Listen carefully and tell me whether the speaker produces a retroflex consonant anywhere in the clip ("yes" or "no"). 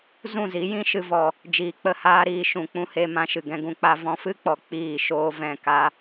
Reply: no